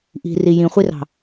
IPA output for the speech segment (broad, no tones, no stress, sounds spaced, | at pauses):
ʔ i̤ r i j ĩ χʷ i r ɑ̤